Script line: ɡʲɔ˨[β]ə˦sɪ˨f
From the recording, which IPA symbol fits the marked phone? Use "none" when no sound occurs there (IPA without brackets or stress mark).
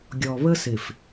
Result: β